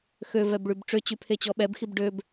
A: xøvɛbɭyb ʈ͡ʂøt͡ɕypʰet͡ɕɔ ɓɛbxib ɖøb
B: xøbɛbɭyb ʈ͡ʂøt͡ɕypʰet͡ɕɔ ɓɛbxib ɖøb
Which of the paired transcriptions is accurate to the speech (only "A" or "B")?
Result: A